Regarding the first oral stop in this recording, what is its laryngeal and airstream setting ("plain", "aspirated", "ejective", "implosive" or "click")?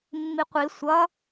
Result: plain